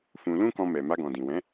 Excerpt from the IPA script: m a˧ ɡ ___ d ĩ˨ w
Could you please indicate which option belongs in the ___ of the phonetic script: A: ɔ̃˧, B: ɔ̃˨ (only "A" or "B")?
B